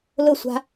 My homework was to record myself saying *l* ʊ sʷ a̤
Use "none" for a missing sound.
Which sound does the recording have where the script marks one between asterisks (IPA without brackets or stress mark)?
l